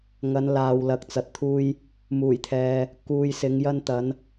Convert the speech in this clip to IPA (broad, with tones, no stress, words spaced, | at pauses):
ŋɐ˨˧n laː˨w lɐ˨k̚t͡sɐ˨t̚t̪ʰuː˧j | muː˨˩jt̪ʰɛː˨ | kuː˨jsɪ˨˧ŋ jɐ˧nt̪ɐ˨˧n